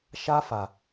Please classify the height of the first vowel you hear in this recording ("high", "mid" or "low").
low